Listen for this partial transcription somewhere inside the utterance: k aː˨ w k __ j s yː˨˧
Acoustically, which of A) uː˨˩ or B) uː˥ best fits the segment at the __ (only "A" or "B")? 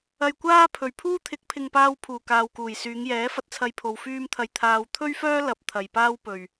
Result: A